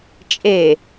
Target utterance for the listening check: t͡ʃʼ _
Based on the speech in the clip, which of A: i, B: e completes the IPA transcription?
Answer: B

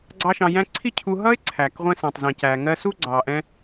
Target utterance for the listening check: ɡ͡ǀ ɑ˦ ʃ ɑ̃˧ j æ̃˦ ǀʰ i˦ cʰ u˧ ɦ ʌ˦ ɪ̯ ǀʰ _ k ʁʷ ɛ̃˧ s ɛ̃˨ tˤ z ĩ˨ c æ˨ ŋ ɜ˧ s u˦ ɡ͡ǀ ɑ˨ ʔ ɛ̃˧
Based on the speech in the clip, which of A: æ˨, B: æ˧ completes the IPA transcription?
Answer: A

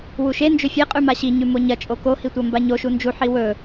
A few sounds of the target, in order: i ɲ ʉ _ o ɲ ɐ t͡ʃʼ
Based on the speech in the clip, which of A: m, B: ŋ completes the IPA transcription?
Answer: A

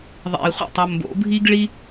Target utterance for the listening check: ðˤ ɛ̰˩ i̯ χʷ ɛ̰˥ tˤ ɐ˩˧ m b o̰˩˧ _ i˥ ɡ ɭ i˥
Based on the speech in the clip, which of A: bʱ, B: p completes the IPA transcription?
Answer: A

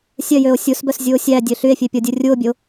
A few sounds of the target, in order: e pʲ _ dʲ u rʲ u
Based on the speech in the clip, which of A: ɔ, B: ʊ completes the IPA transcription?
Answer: A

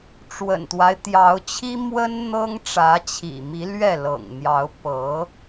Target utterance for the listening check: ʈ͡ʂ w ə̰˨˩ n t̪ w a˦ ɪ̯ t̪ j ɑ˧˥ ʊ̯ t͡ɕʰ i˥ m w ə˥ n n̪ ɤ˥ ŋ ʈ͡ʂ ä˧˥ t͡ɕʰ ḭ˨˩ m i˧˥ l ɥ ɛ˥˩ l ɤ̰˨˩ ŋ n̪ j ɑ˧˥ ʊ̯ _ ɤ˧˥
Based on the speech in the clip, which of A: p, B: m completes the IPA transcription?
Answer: A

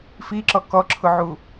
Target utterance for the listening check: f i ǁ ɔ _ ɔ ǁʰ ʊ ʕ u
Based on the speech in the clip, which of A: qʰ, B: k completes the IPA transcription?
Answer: B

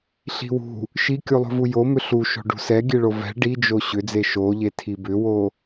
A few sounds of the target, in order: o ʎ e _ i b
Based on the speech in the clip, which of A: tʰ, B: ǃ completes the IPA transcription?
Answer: A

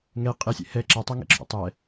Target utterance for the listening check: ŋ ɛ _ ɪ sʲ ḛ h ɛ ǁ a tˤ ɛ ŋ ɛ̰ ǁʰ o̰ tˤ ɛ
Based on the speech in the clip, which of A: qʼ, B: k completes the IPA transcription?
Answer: A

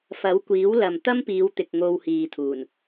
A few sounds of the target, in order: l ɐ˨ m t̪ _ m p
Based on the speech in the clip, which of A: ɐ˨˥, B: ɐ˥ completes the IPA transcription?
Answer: B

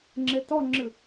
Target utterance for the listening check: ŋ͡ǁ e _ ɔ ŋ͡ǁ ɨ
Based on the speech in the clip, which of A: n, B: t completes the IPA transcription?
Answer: B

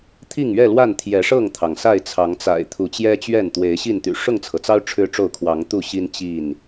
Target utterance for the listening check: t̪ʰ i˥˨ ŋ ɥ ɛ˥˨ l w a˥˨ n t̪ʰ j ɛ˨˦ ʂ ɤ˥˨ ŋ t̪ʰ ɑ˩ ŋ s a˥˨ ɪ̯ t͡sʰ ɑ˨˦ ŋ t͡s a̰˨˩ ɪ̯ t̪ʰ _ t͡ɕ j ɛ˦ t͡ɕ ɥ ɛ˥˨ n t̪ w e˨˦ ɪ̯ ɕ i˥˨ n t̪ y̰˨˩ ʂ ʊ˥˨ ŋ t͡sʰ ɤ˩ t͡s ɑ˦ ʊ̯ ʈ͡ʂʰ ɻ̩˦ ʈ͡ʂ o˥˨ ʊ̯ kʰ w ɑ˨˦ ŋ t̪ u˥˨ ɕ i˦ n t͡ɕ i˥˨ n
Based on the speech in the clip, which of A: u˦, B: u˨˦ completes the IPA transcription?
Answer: B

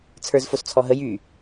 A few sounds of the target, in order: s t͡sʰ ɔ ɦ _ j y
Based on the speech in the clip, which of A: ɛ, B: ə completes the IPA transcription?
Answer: B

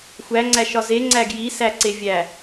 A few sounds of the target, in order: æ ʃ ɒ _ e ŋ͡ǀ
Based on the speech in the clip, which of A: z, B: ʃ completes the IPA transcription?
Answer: A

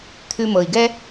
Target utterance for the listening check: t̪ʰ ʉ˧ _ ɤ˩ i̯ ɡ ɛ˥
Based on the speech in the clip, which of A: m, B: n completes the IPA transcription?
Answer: A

